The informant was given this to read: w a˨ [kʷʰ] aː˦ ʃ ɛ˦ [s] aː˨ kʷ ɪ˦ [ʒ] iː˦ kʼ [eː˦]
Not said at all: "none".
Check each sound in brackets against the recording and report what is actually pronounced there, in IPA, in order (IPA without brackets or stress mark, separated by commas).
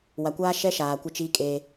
kʷ, ʃ, t͡ʃ, eː˦